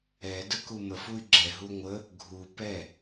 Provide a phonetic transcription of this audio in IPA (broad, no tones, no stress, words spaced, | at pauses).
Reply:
ɛ dəkuməf uy̯ɡ͡ǁɛ ɦuŋʷə | ɡʱu pɛ